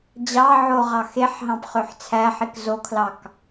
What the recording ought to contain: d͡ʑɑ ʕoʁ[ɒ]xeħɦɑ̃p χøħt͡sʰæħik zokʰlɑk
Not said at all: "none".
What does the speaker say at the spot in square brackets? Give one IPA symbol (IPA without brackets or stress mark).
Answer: ɑ